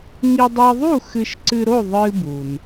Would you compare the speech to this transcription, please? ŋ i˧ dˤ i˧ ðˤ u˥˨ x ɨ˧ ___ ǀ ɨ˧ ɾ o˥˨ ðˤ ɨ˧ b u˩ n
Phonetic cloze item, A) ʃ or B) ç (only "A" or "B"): A